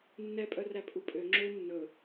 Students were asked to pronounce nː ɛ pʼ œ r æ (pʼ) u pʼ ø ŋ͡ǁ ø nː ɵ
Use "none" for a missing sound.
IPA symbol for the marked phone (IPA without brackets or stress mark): pʼ